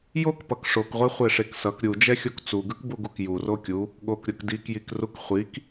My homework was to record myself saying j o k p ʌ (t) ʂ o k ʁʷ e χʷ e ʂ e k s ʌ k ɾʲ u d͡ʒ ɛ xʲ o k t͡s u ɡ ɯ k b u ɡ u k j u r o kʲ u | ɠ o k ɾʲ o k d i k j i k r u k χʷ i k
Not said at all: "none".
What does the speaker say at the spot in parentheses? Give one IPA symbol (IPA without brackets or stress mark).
k